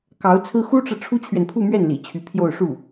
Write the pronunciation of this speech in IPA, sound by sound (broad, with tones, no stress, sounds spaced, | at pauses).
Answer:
k ɑ˧˥ ʊ̯ t͡sʰ ɹ̩˥ x u˥ ʈ͡ʂ ɤ˨ ʈ͡ʂʰ u˥ t͡ɕʰ ɥ ɛ˨ n pʰ u˥˧ m ɥ ɛ˥˩ n l ḭ˨˩ t͡ɕʰ y˧˥ pʰ j o˥˧ ʊ̯ ʂ u˥˩